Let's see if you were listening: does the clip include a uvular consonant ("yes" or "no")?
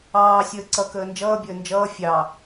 no